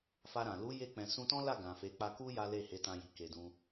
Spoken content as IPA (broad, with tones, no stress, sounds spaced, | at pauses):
f a˧ ɾ ã˨ l u˨˦ j e˧ k͡p ɛ̃˨ s ũ˧ t ɔ̃˦ l a˦˨ ɡ ã˨ f e˨˦ k͡p a˧ k u˦ j a˦ l e˦˨ h e˨˦ t ã˧ j i˨ k e˧ d ũ˧